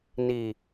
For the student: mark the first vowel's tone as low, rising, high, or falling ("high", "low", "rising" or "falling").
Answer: low